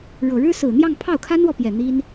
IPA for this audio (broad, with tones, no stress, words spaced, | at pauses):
ɻɤ˨˩ɻɻ̩˥sɹ̩˨˩n̪jɑ˥˧ŋ pʰɑ˥˩ʊ̯kʰa˥nwɔ˨pjɛ˨˩ n̪i˥n